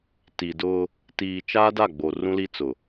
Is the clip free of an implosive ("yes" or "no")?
yes